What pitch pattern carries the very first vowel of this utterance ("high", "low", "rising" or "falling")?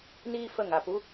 high